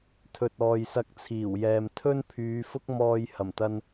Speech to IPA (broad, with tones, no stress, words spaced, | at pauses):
t̪ʰɵ˨t̚ɔː˨jsɐ˧k̚ t͡sʰiː˨˩wjɛː˨m t̪ʰɵ˥npʰyː˨˧fʊ˥k̚ mɔː˧j hɐ˨˩mt̪ɐ˧n